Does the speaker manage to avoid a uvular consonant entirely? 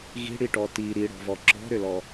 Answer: yes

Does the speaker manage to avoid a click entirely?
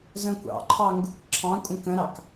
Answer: no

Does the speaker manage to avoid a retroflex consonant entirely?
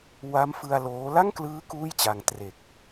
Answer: yes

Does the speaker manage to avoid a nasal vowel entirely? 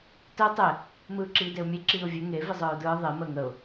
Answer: yes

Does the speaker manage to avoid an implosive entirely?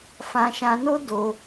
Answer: yes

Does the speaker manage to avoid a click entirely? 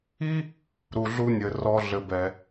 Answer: yes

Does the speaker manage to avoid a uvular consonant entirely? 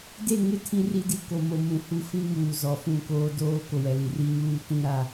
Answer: yes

